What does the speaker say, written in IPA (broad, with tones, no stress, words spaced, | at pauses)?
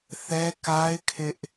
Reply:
θɛ˦ka˦ɪ̯kʰɪ˦ʔ